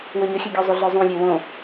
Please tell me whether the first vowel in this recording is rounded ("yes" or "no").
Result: yes